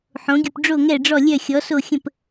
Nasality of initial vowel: nasal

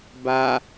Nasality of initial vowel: oral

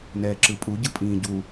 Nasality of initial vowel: oral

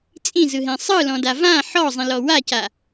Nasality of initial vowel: nasal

